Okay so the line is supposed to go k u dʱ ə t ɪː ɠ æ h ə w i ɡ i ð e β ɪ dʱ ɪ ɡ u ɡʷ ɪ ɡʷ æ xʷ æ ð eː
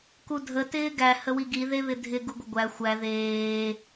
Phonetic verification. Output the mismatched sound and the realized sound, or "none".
ɠ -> ɡ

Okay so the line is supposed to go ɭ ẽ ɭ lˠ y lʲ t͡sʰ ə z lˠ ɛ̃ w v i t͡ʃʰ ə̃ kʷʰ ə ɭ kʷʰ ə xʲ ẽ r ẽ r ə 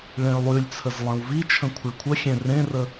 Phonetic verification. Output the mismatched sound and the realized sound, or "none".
none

